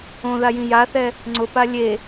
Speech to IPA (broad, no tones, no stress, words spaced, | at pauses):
õðajĩ jaθɛ | ŋ͡ǀʊpa lʲe